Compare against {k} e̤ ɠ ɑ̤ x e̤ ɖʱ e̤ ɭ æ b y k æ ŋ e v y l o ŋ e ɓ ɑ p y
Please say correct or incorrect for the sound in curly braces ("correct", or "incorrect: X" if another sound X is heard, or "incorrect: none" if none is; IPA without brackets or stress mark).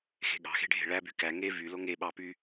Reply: incorrect: x